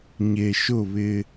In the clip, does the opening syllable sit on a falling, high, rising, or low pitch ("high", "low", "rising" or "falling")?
low